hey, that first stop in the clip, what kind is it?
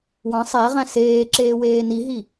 click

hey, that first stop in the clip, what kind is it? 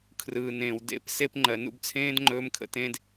aspirated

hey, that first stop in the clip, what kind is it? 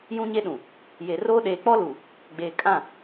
implosive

